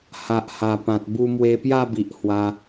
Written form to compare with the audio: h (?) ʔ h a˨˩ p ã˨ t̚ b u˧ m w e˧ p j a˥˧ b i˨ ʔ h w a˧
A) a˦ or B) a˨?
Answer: B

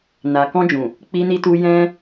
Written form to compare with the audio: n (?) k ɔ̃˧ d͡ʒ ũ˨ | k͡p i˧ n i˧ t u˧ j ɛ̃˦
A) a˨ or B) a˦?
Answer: A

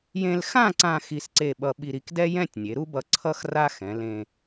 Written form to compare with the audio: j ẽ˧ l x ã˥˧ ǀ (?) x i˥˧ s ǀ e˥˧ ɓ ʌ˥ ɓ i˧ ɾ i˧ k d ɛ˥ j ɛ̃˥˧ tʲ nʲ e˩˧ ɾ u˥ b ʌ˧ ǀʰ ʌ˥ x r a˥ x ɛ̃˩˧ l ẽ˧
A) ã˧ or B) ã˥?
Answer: A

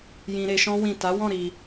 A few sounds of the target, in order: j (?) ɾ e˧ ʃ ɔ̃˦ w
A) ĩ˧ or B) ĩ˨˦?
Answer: A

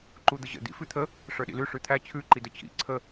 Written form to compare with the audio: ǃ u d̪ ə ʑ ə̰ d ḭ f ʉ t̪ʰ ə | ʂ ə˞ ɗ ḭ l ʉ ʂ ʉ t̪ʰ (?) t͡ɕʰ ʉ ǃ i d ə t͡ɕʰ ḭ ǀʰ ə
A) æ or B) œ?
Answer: A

